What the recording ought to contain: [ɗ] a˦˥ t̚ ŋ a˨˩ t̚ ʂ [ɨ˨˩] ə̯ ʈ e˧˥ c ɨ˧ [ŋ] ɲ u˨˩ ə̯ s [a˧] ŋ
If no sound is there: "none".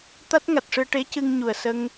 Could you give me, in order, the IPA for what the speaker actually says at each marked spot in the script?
t̪, ɨ˧, ŋ, ə˧

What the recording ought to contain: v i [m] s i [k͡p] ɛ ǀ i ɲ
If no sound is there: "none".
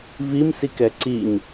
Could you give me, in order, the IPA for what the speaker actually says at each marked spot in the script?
m, k

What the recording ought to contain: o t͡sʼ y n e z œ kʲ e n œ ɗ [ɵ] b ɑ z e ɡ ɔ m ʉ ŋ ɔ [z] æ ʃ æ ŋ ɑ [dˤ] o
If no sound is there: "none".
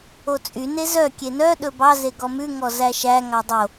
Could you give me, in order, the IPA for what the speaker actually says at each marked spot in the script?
ɵ, z, dˤ

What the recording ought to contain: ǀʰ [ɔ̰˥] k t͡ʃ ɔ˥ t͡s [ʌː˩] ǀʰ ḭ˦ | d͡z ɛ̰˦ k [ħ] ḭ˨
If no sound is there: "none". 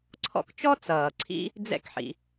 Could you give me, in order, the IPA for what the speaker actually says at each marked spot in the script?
ɔ̰˦, ʌː˩, ħ

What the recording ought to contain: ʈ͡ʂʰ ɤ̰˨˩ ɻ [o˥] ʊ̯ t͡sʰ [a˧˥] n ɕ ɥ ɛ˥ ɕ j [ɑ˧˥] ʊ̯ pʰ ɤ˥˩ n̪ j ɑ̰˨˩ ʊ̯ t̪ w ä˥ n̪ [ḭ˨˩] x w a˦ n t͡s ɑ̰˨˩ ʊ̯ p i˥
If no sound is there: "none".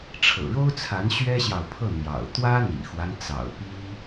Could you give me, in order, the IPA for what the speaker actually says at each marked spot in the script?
o˥, a˧˥, ɑ˨, ḭ˨˩

